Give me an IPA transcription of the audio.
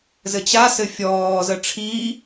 z ɘ t͡ɕ a s ɘ fʲ ɔː z ə ʈ͡ʂʰ iː

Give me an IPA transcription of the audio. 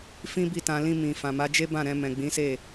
f ĩ˦ b i˦˨ t ã˧ l ĩ˧ m ĩ˨ f ã˨ m a˨˦ d͡ʒ e˦ b ã˦˨ ɾ ɛ̃˧ m ɛ̃˨ ɡ͡b ĩ˨˦ s e˦˨

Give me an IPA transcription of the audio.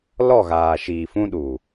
l ɔ˦˨ ɣ aː˨ ʃ iː˨ f ũ˦ ɗ u˨

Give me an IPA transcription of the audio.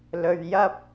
l ɵ˧ ɥ j ɐ˥ p̚

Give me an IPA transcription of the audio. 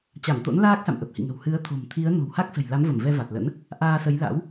t͡ɕ a˧˩ m t̪ o̰˧˥ n l aː˦˥ k̚ s a̰˧˨ m ʔ ə˨˩ p̚ h ḭ˧˨ ŋ ə̤˨˩ w h ɨ˨˦ ə̯ t̪ʰ o̤˨˩ m t̪ʰ i˨˦ ə̯ n o̤˨˩ w h a˦˥ k̚ s ə̤˨˩ j l a˨˦ m v ə˧˩ m v ɛ˧ v a˨˩ t̚ l ə̰˧˥ n | ʔ aː˧ s ə˨˦ j l a̰˧˥ w

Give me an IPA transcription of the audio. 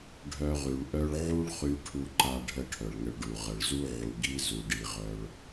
ɖʱ œ˧ ʁ y˨ ɭ ʔ œ˧ ɭ ʕ u˦ ɭ χ y˧ ʈʰ u˧ ǃ a˧ ɖʱ ə˧ ʈʰ œ˨ ɭ ŋ ə˧ ɭ ɖ u˨ ʁ ə˨ ɭ z u˦ ʕ u˨ ɡ i˦ z u˧ ɖ i˧ ʁ œ˦ ɭ

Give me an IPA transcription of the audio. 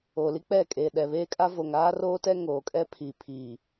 oː˨ l i˦ k͡p ɛ˦˨ kʼ eː˨ ɗ ɛ˨ β eː˦ kʼ a˦ v o˨ ŋ aː˦ r oː˦ t ɛ˦ ŋ oː˨ kʼ ɛ˦ pʰ iː˨ pʰ iː˨

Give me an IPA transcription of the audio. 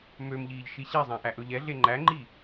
m ø m ʎ iː ʎ ʃ i ɕ ɛ zˤ æ̃ ʔ æ ʔ ɵ ʎ ɛ ɮ e ŋ͡ǃ æ ŋ͡ǃ i

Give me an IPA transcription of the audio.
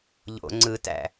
ʎ o̰ ŋ͡ǀ ɯ t æ̰

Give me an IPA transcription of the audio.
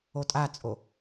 o tʼ a t͡sʼ o

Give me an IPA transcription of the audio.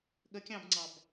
ɠ ə kʲ ɑ̃ b ŋ͡ǀ ɑ b

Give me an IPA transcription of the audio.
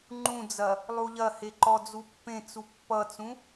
ŋ͡ǃ ũ d͡z ɐ | lˠ u ʎ ɐ h e ǃ ɔ d͡z u pː ẽ t͡s u pː ʌ t͡s ũ

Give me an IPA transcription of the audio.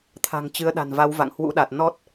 t̪ʰ a̤˨˩ ŋ t͡ɕ ɨ˨˦ ə̯ ɗ a̤˨˩ n v a˨˦ w v a̰˧˨ ŋ h w ṵ˧˥ ɗ a˨˩ t̚ n ɔ˦˥ t̚

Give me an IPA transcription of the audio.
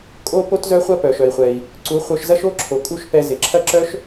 kʼ o˦ p o˦ t z œ˦ χʷ ɐ˦ p œ˨ ʃ œ˨ i̯ χʷ ɛ˨ i̯ | ǀ u˨˦ χʷ œ˧ ʃ z ɐ˦ ʃ o˦ ǁʰ o˨ kʼ u˦˨ ʃ p ɛ˧ z ɪ˨ ǁʰ ɐ˦ ǁ œ˦ ʃ

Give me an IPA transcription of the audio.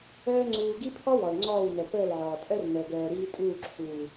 œː˦ ŋ͡ǀ uː˧ ɡ i˦ pʰ ɔ˦ w ɔ˨ l ŋ͡ǀ ɔː˦˨ w n œ˨ p əː˦˨ l ʕ ɔː˨ tʼ œ˦ r n əː˨ ɡ œː˨ ɾ iː˧ tʼ uː˦˨ ǁʰ uː˨

